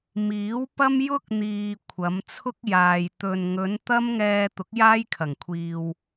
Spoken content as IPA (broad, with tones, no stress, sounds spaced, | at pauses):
m iː˨˥ w p ɐ˥ m j ʊ˥ k̚ n̪ iː˨ kʷʰ ɐ˨˧ m t͡sʰ ʊ˥ k̚ j aː˨ j t̪ ɵ˨ n ŋ ɵ˨˧ n t̪ ɐ˥ m ŋ ɛː˧ t̪ ʊ˨˥ k̚ j aː˥ j kʰ ɐ˨˩ ŋ kʷʰ iː˨ w